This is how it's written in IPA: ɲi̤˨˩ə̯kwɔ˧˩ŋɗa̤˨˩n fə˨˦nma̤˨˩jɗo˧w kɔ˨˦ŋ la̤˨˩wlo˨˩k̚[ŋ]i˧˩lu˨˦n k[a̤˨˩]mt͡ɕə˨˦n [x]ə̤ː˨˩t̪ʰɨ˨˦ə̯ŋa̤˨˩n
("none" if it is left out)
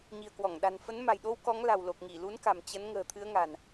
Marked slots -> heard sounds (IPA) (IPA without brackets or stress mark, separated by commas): ŋ, a̤˨˩, ŋ